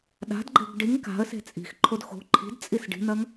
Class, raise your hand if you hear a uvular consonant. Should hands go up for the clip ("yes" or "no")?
no